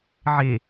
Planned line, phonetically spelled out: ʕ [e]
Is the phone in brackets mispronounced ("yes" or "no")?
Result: no